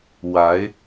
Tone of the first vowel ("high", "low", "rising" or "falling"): rising